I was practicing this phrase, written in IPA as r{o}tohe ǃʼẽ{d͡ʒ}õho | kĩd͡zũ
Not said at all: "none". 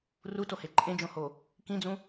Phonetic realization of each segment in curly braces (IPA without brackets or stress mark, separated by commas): u, d͡ʒ